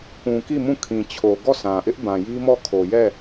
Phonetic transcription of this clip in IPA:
kũ˨ ki˦˨mũ˦˨ kʰĩ˨t͡ɕʰo˨ ɡɔ˦˨sʰã˨ʔɪ˦ʔ bã˨ji˦mɔ˦˨ kʰo˨jɛ˦˨

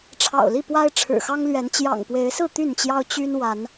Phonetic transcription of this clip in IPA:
ʈ͡ʂʰɑ̰˨˩ʊ̯li˥˨pwa˦ɪ̯ ʈ͡ʂʰɻ̩˨˩xɑ˦ŋlɥɛ˨˦n t͡ɕjɑ̰˨˩ŋpwe˨˦ɪ̯sɹ̩˥˨ t̪y˥˨nt͡ɕjɑ˦ʊ̯ t͡ɕy˦n wa˨˦n

